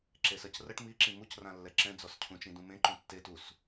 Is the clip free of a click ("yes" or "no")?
no